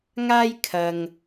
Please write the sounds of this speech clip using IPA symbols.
ŋ aː˥ j kʰ ɐ˧ ŋ

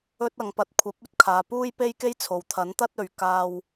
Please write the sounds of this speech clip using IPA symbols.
ɵ˥ t̚ ɐ˨˧ ŋ p ɐ˨ t̚ kʷʰ ɐ˨˥ p̚ ɵ˥ t̚ kʰ aː˨ p uː˥ j p e˥ j k e˥ j t͡sʰ o˨ w t̪ʰ ɐ˨˥ n t̪ ɐ˥ t̚ ɵ˨˧ ɥ k aː˥ w

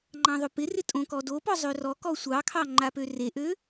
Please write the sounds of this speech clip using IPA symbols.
ŋ͡ǃ ɑ̃ ðˤ o p ɪ r ɪ tʼ õ k ɔ d o p ɔ zˤ ø r ɔ k ɔ sʷ ɑ kʰ ɑ ŋ͡ǃ a p ø r e ʔ ø

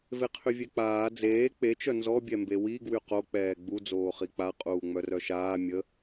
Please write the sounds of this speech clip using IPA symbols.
v e qʰ y vʲ ɛ k͡p aː d͡z eː k͡p e t͡ʃ œ n z ɔ bʲ ɛ m b e w i ɡ w y q o k͡p ɛː ɡ͡b u d͡z oː χ i k͡p a qʼ uː ŋ͡m œ r œ ʃ aː mʲ ə

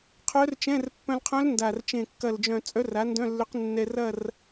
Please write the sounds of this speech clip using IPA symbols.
qʰ œ˧˥ r t͡ʃ ɛ̃˧˥˧ r pː œ̃˧ l qʰ œ̃˧˥ l n d a˨˩ r t͡ʃ ẽ˨˩ kː ɐ˨˩ l d͡ʒ œ̃˨˩ t͡sʼ œ˧˥ r a˩˥ n d œ̃˧˥˧ lː ʏ˧˥ q nː ɛ˧ r ɐ˥˧ r

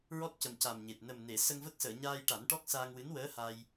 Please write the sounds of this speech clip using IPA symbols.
ɹ ɔ˦˥ t̚ c ə˨˩ m c a˨˩ m ɲ e˨˩ t̚ n ə˨˩ m n e˨˩˨ s ə˧ ŋ v ə˦˥ k̚ s əː˨˩˨ ɲ aː˧ j ʈ a˨˩˦ n ʈ ɔ˦˥ k̚ s aː˧ ŋ w ɨ˧˥ n w əː˧˥ h a˧ j

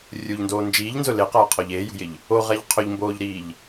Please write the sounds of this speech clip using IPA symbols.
rʲ u ʎ n d oː n d͡ʒ iː ʎ n z ʊ l e q aː qʰ ɔ ʎ eː j ṳ j ɪ ʎ | o ʁ ɛ ʎ qʰ ʊ ʎ m b oː ʎ ɾ iː ʎ

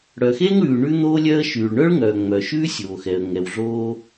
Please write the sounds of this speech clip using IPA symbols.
ɽ œ˩ x e˥ ŋ ɽ ʉː˩ ɳ ʉ˥ n̪ oː˥ lʲ œ˥ ə̯ ʃ yː˩ ɭ ɳ œ˥ ɭ ŋ œː˩ ŋ͡m œ˩ ʃ ʉː˥ sʲ oː˩ x ɛ˩ ə̯ ŋ ɛ˩ w ɮ oː˥

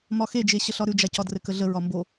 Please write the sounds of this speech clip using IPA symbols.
m ɒ x e d͡ʒ e ɕ ə ɬ ɒ ɾ ʉ d͡ʒ a c ɒ d r ɘ k ə ɮ ə ɹ ɒ m b o

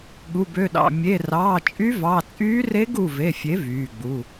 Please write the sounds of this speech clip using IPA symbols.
ɠ u˩˧˩ b ø˩˧˩ ɗ ɑ̰˩˧˩ mʲ e˩˧˩ r ɑː˩˧˩ t͡ʃʼ y˧˥ v ɑ˩˧˩ t͡sʼ yː˧˥ r e˧˥ ɡ u˩˧˩ v e˩˧˩ fʲ e˩˥ v yː˩˧˩ ɡ͡b u˩˧˩

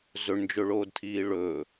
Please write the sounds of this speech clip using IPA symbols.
z ɵ ɳ n d͡ʒ ɵ ɭ oː d tʰ iː ɭ ɵ

